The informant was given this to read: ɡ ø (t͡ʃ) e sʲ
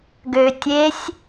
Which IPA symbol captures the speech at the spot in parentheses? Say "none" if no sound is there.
tʲ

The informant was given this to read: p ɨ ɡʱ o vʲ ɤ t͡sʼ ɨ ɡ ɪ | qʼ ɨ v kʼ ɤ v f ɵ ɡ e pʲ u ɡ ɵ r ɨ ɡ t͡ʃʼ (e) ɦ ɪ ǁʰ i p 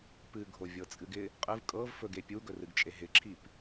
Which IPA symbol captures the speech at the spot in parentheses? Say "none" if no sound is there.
e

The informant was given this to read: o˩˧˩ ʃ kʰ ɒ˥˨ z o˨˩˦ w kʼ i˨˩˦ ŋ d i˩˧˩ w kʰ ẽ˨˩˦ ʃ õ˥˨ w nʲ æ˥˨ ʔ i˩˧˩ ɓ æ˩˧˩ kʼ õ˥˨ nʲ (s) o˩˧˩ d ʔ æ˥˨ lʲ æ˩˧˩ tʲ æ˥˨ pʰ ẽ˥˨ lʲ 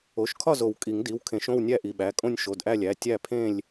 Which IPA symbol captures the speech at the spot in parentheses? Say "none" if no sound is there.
ʃ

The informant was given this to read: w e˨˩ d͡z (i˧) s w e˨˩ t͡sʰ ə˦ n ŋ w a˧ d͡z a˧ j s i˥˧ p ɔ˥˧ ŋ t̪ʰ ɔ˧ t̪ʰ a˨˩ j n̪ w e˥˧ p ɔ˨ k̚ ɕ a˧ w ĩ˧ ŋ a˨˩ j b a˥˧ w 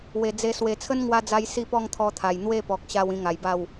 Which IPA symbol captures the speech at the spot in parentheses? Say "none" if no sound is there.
e˧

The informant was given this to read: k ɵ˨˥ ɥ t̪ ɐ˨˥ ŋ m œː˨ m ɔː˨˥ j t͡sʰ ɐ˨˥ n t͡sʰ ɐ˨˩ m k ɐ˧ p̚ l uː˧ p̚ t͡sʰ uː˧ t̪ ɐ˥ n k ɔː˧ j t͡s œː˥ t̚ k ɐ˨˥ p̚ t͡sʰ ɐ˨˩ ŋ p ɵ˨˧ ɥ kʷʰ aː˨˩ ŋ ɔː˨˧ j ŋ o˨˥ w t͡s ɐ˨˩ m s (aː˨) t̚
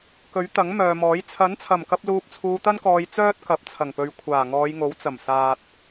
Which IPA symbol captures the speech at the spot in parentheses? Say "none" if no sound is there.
aː˨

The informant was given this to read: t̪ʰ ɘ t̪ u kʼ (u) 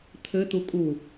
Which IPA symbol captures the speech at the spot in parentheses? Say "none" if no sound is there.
u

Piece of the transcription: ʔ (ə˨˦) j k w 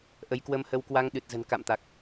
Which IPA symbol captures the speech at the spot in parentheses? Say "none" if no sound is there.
ə˨˦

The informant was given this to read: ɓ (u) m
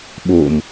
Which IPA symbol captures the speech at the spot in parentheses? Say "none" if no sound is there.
o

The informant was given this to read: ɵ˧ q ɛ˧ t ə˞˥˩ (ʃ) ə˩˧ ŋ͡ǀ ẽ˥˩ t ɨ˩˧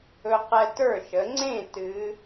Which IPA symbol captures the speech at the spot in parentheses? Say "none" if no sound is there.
ʃ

